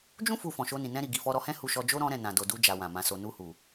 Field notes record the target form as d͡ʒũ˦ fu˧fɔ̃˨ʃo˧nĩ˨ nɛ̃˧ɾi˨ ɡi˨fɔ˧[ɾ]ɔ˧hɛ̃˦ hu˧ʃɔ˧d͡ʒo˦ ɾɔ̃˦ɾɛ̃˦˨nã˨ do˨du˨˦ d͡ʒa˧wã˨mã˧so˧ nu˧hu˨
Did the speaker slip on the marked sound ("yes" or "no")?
no